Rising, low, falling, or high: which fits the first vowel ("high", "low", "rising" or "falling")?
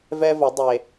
high